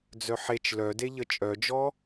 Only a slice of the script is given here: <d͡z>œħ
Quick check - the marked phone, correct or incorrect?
correct